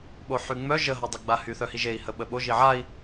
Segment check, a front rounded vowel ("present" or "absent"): present